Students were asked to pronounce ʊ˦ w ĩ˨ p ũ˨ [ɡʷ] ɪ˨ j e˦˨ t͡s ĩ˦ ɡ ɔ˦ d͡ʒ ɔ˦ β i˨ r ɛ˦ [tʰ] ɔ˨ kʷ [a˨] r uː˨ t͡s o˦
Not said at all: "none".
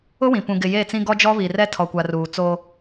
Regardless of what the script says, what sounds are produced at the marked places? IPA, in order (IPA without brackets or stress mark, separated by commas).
ɡ, tʰ, a˨